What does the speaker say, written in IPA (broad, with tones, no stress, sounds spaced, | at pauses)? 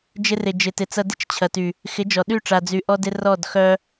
d͡ʒ ɪ˧ r ɪ˨ d͡ʒ ɪ˨ t ɪ˨ t͡s ɐ˧ d ɪ˦ t͡ʃ t͡ɕʰ ɐ˨ t y˨ | x ɪ˨˦ d͡ʒ ɔ˨ ɗ y˦˨ ʈ͡ʂ a˨ d͡z y˨ ʔ ɔ˧ d ɪ˧ r ɔ˦˨ d x œ˦